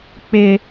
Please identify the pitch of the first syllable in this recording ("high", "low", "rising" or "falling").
high